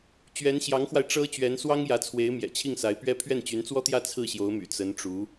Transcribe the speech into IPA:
t͡ɕɥɛ˧˥nɕjɑ˧˥ŋxwa˧ɪ̯ ʈ͡ʂɤ˥ t͡ɕɥɛ˧˥nswɑ˥ŋjä˧˥t͡sʰwe˧˥ɪ̯ mjɛ̰˨˩t͡ɕʰi˥˩ŋsa˧˥ɪ̯pɥɛ˥ pʰɥɛ˥˩nt͡ɕy˧˥nt͡swɔ˥t̪jä˥˧ t͡sʰɹ̩˥˩ɕjo˧˥ʊ̯my̰˨˩ t͡sə˧˥nʈ͡ʂu˧˥

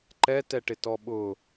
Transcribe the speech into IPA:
ǃɛtɛʈɪtɔ ɓʊ

